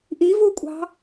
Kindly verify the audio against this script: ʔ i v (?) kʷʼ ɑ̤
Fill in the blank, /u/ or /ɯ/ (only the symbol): u